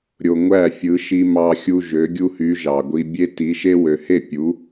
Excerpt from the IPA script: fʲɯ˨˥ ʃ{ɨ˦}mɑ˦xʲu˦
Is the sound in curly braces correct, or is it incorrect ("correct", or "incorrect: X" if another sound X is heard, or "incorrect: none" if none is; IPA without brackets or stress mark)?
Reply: incorrect: i˦